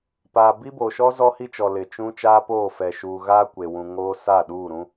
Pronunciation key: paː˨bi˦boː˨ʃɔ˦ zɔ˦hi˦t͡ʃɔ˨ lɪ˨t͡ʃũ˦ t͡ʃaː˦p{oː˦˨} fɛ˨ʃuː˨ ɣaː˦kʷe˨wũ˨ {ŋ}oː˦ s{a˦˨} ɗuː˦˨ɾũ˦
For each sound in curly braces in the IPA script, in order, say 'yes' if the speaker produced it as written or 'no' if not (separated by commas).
yes, yes, yes